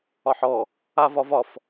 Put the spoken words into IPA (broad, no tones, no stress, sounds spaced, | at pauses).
ɒ ħ ɔ | a v ɒ v ɒ f